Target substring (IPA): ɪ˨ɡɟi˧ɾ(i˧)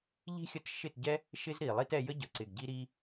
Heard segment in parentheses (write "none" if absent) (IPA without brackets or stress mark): i˧